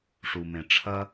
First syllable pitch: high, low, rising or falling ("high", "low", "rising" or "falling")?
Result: low